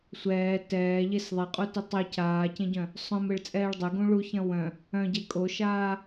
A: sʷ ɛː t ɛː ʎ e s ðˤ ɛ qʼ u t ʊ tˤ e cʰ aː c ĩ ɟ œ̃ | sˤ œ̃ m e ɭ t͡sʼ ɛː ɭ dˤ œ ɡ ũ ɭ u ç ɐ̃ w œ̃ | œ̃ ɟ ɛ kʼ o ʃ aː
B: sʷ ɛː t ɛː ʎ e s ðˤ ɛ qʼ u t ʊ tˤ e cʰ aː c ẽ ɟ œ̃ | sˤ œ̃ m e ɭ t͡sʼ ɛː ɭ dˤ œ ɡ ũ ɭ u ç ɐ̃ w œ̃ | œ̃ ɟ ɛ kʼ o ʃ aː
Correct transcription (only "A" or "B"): B